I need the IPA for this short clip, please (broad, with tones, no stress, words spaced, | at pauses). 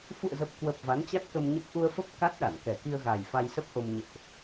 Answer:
fṵ˧˨ə̯zə˨˩p̚kwə˨˩p̚ va˨˦nt͡ɕa˦˥t̚kə˧mɲə˦˥p̚ ʔu˧ə̯fə˦˥p̚ ka˦˥t̚ɗa˧˩nkɛ˨˩ki˧ə̯ ɣa˨˩j fa˧jsə˦˥p̚ʔo˧m ɲḛ˧˨ʔ